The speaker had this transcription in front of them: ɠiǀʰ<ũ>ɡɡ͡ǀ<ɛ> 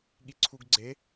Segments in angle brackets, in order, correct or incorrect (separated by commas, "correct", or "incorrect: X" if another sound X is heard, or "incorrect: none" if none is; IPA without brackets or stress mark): incorrect: u, incorrect: e